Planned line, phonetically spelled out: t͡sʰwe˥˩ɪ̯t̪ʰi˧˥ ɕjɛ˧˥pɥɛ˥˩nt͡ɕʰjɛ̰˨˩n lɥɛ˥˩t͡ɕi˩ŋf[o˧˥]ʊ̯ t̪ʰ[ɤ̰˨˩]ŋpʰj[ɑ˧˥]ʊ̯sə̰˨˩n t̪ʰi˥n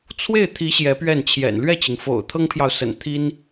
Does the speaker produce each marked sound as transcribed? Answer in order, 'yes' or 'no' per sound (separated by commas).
no, no, no